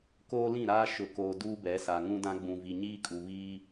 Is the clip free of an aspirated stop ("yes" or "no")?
yes